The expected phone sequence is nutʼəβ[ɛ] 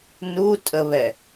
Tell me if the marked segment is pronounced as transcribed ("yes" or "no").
yes